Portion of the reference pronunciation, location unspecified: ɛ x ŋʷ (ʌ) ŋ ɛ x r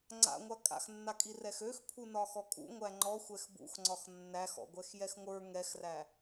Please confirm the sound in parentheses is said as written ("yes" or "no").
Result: no